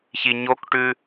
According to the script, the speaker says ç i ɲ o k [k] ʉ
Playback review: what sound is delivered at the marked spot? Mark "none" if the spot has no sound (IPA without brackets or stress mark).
ʈ